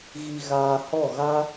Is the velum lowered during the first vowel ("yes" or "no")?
no